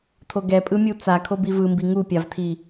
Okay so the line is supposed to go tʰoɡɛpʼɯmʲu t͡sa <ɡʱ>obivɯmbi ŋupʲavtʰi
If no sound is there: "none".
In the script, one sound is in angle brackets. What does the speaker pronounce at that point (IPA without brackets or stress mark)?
kʰ